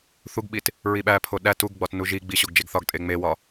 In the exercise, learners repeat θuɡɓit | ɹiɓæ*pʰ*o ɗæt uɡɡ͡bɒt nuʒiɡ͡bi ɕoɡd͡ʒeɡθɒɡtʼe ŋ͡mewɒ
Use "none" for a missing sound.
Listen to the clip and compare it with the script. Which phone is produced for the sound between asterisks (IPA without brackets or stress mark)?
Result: pʰ